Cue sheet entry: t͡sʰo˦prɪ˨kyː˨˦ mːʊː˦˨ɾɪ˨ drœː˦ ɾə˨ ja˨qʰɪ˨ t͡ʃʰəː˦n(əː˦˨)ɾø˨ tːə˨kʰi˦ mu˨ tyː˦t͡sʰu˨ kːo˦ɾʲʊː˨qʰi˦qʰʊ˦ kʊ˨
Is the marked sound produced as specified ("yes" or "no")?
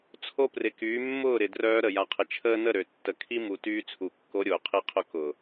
no